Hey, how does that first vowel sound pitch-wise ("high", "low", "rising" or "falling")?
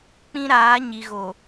high